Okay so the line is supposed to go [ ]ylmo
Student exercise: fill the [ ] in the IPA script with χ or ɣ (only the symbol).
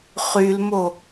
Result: χ